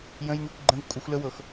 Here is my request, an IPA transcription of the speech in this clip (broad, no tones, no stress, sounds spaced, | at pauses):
j ə̃ j n̪ y kʷ ɡ͡ǃ ə̃ v kʷʼ ə xʷ l ə w ɤ x